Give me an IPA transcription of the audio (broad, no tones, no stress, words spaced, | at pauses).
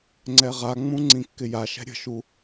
ŋ͡ǀɛʁaŋ͡mũ ŋ͡ǀĩkːɪjaʃɛ̤ ɾʲə̤ʃu